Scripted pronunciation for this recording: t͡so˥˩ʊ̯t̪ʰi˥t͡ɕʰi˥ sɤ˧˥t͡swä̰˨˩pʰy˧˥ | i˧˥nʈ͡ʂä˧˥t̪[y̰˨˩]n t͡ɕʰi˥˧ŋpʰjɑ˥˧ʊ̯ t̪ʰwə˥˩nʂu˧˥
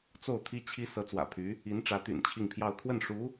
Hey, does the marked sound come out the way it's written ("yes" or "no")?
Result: yes